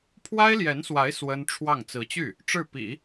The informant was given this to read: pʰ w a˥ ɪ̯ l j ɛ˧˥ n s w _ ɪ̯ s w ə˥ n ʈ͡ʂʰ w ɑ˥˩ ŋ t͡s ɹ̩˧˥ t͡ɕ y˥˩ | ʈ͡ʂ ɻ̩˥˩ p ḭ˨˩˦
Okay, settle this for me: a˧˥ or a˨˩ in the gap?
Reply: a˧˥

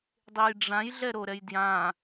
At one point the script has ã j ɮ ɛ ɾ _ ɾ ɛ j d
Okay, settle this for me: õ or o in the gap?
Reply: o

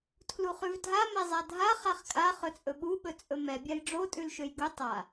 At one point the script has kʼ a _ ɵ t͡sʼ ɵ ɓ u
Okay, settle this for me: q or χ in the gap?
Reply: χ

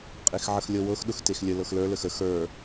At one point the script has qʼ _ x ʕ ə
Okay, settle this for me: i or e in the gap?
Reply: e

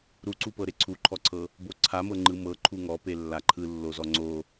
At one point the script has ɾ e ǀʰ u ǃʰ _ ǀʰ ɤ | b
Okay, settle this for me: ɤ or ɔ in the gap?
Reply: ɔ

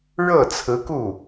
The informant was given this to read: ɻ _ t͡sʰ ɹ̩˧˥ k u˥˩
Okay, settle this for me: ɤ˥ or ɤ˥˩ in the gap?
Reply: ɤ˥˩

